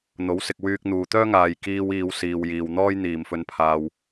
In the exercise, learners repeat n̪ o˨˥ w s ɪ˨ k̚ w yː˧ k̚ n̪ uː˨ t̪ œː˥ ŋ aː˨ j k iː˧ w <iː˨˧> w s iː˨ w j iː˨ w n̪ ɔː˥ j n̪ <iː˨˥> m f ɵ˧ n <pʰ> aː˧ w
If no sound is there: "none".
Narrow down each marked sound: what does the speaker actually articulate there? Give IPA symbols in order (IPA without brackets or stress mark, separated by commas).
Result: iː˨˧, iː˨, pʰ